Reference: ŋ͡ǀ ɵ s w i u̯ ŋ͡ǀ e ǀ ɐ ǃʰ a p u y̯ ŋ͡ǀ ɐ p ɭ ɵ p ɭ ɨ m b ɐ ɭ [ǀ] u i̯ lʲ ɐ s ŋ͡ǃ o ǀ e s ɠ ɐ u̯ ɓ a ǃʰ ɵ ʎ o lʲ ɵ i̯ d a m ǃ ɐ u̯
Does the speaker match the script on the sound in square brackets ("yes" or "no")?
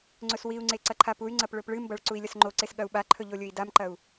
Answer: yes